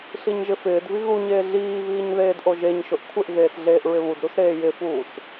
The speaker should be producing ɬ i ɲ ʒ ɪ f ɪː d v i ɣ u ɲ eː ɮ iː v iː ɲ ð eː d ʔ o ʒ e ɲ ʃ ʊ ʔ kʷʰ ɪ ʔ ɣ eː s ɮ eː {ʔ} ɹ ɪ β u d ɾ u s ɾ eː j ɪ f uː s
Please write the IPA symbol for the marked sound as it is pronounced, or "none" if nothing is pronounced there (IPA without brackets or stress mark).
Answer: ʔ